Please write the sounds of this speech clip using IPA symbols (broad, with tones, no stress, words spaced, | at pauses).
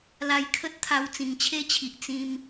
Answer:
la˧jkʰə˦t̚t̪ʰa˧w t͡sĩ˨˩ŋt͡ɕʰe˦t͡ɕʰi˨ʔ t͡sĩ˧m